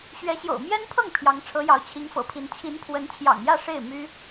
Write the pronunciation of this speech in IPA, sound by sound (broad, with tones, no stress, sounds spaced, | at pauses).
ɕ ɥ ɛ˧˥ ɕ j o̰˨˩ ʊ̯ m j ɛ˥ n pʰ ɤ˥˩ ŋ pʰ j ɑ˧˥ ŋ ʈ͡ʂʰ ɤ˧˥ j ɑ˧˥ ʊ̯ t͡ɕʰ i˧˥ ŋ f ɤ̰˨˩ pʰ i˧˥ n t͡ɕʰ i˧˥ n pʰ w ə˧˥ n t͡ɕʰ j ɑ̰˨˩ ŋ j ä˥˧ ʂ e˥˩ ɪ̯ m y˥